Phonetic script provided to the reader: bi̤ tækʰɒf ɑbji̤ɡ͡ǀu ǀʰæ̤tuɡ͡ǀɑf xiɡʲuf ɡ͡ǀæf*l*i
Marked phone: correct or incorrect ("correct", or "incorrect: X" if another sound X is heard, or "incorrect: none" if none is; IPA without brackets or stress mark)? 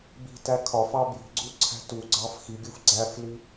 correct